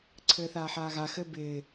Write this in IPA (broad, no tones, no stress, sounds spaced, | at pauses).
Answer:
ǀʰ ɘː θ aː ħ aː ɣ a x ɘ b ɪː